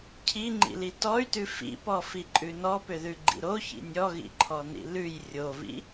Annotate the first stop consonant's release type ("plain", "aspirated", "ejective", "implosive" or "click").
aspirated